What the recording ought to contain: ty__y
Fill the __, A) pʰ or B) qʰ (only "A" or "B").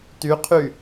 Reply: B